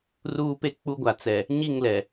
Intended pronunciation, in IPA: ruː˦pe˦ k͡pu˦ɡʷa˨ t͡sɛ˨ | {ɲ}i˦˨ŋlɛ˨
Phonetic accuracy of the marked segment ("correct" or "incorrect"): correct